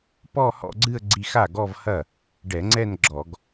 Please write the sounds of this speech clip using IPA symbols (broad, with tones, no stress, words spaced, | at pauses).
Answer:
pɔ˥˧ hɔ̰˥˧ɡ͡ǀɨ˥˧ə̯ ɡ͡ǀi˧xa˥˩ɡɔ˥˧vhɐ˥˩ | ɖɛ˧˩˧ŋ͡ǀɛ˥˧n ɡ͡ǁɔ˧˩˧ɡ